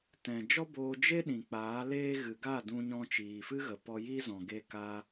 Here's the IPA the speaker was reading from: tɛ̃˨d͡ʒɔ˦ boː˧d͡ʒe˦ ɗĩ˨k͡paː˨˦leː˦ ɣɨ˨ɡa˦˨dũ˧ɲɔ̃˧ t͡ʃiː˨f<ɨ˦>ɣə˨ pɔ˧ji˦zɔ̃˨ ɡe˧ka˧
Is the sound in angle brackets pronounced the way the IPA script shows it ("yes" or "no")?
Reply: yes